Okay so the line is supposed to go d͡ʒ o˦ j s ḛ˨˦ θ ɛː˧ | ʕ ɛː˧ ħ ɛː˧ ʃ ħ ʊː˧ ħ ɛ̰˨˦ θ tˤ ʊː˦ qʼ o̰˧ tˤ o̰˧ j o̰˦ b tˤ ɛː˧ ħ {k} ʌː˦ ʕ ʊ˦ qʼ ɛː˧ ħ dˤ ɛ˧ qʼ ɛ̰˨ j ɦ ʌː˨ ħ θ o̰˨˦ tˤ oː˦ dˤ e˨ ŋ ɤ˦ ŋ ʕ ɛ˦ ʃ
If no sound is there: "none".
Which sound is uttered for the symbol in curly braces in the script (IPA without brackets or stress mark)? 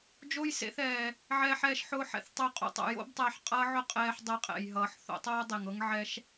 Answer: qʼ